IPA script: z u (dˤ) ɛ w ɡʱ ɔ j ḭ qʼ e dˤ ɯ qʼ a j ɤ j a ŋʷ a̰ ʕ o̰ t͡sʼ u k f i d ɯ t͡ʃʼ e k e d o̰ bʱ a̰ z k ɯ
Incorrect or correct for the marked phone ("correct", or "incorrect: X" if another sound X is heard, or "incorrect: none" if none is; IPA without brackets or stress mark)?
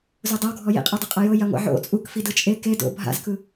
correct